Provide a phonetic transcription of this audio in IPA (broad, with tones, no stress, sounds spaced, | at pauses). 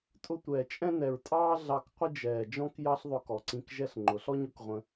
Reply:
tʼ ʊ˧ tʷ ɛː˨ t͡ʃʼ ɛ̃˦ n ɛ˨ ɹ tʼ ɑː˦ ɮ ɑ˦ k qʷ ɪ˦ d͡ʒ ɛː˨ d͡ʒ ɔ̃˦ k j ɑ˦ ɬ ðˤ ʊ˧ k ɔ˨ ǀ ĩ˧ k ʒ ɛ˦ ɬ ŋ͡ǃ ʊ˨˦ ɬ ɔ˦ ɲ ʊ˨˦ k ʁʷ ə̃˧